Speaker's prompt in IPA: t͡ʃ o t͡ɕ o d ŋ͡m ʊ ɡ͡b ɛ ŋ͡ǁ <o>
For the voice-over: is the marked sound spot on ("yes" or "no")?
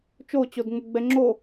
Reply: yes